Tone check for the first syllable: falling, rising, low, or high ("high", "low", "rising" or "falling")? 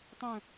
falling